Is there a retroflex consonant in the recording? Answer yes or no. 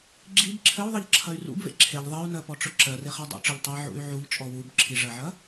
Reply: yes